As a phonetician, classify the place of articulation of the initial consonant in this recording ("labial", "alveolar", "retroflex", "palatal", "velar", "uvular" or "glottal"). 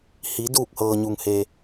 glottal